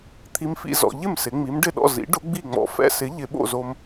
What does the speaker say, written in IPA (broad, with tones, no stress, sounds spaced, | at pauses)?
t̪ʰ i˧ m f ḭ˧ z ɔ̰˩˧ ʎ ɪ˥˩ m s ɪ˩˧ ŋ͡m i˩˥ m ɖ ɪ˥˩ ɗ ɔ̰˥˩ z ḭ˩˥ ɖ ʊ˩˥ ɡ͡b i˥˩ ŋ͡m ɔ̰˧ f ɛ̰˧ s ɪ˩˥ ʎ ɪ˩˧ ɓ o̰˥˩ z o˧ m